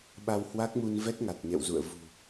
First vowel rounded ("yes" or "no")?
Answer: no